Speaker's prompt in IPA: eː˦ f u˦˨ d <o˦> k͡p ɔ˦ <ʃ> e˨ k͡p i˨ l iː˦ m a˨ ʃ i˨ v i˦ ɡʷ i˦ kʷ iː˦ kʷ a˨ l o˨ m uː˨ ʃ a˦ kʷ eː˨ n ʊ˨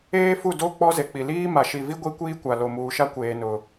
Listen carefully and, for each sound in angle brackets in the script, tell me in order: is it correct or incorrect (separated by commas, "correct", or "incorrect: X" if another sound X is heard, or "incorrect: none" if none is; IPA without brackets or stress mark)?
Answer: correct, incorrect: z